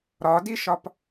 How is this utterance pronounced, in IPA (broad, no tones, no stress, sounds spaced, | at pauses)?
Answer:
ɾ ɒ d i ʃ ɒ p